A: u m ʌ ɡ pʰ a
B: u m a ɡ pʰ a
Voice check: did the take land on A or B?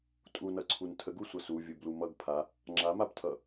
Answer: A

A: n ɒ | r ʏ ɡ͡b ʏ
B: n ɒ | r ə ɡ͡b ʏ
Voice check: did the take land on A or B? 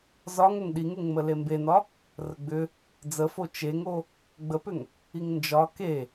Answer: B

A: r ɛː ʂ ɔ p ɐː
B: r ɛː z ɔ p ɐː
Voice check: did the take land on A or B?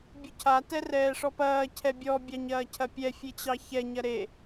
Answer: A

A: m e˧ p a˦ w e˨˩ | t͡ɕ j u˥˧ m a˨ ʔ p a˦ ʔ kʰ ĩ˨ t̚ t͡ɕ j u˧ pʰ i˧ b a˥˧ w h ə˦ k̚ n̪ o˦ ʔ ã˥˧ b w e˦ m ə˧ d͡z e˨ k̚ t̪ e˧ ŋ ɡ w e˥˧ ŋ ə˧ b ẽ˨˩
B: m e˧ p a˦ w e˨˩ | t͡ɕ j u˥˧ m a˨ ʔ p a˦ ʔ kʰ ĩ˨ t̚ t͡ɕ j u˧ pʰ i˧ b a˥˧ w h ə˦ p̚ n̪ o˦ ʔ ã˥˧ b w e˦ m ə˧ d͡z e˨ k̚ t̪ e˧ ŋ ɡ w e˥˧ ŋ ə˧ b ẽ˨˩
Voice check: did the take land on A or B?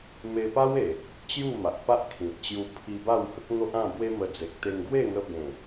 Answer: A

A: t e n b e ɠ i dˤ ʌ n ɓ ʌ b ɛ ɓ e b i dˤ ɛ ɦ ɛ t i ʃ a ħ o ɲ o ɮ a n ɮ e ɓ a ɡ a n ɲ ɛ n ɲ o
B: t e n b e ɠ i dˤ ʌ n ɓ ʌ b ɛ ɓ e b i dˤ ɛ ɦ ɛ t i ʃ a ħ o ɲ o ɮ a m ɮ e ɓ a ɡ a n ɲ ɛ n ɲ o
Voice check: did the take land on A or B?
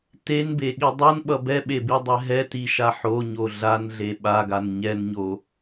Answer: A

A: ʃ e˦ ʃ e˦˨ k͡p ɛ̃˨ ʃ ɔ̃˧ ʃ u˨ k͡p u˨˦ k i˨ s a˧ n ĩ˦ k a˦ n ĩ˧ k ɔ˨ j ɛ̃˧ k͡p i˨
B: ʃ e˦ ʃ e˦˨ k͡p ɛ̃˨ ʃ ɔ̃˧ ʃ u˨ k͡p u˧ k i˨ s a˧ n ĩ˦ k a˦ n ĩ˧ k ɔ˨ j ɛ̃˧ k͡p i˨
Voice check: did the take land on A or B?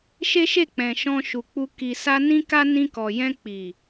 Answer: B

